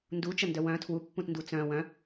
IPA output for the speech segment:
n d u t͡ʃ ə n d œ w œ̃ tʰ w u pː ũ t n d u t͡s œ̃ w œ̃

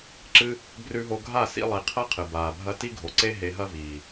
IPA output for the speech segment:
ǁ ɨ˦ | b r ʉ˧ ɦ o˧ ɡʱ a˦˨ s ḭ˧ lˠ i˨ qʰ ɐ˦ qʰ ɨ˨ b aː˨ bʱ ɐ˦ t i˦ ɡʱ o˨ ǀ e˦ ɦ e˧ ɦ ɐ˦ v iː˨

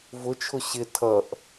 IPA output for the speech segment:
v ʊ t͡ʃʰ ʊ ɕ ɪ tʰ ʌ ʔ

